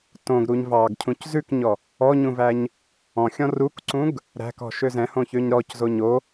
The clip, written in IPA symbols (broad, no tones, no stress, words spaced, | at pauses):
tõɡɾuɲ vɑɡcʰũc zʉkɲɔ | ɔɲũvæɲ | ɔ̃xʲɔ̃ rukǀũɡ | ɾæ̤kɔ̤ʃø zɛ̃hõçøɲ ɾɔczo ɲo